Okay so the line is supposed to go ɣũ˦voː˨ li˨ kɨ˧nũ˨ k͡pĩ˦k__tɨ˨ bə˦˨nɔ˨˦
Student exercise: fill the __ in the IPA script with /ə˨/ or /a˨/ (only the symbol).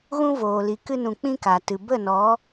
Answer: a˨